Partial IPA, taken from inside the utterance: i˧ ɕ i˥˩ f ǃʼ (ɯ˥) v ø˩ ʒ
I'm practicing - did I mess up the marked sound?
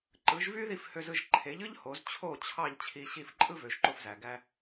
no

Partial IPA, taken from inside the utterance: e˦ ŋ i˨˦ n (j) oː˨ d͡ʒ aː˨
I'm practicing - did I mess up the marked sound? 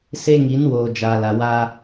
yes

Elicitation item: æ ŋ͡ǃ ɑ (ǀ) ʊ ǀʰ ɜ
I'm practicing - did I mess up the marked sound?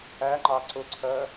no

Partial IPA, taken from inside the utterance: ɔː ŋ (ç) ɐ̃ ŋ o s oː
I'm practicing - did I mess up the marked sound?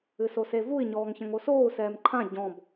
no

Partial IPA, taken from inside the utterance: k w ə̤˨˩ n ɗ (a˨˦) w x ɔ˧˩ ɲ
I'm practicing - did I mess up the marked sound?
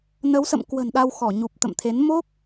yes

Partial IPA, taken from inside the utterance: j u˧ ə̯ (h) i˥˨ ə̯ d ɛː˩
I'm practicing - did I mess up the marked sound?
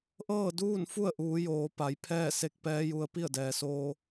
yes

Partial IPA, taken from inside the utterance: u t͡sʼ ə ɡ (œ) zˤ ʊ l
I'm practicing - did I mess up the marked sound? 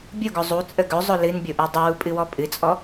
yes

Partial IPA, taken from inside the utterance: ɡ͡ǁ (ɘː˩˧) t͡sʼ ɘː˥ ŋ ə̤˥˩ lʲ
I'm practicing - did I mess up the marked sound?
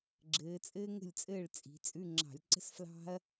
no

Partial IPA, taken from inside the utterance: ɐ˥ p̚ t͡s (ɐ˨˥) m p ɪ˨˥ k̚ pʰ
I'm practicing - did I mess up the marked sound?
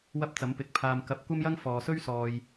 no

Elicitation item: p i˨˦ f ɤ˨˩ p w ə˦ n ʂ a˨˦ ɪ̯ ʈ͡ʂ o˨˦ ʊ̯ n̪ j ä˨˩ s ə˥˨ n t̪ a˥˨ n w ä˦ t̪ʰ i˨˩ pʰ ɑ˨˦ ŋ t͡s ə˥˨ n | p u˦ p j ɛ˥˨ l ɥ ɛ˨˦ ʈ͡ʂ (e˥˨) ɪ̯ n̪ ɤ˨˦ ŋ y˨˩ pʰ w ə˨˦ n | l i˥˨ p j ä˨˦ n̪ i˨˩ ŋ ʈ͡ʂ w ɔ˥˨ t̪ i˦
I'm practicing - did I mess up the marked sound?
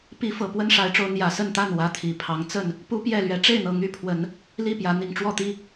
no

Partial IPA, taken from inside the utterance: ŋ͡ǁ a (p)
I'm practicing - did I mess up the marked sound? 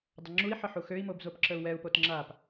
no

